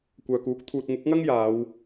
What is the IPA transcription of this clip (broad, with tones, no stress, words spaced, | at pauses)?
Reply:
kʷœː˨kuː˨˥k̚ t̪ʰuː˨t̚ŋʊ˨˥k̚ŋɐ˥ŋ jaː˨˧w